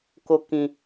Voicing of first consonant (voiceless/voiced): voiceless